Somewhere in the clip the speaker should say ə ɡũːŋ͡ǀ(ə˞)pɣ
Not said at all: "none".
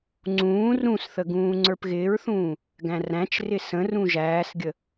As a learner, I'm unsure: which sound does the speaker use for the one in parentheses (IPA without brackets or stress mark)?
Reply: ə˞